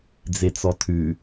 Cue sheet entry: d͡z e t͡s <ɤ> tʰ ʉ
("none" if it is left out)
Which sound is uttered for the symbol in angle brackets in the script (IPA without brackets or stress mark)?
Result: ɔ